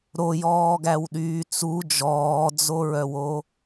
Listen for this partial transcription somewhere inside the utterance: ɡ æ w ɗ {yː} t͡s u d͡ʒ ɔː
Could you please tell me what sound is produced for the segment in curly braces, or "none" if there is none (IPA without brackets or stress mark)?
yː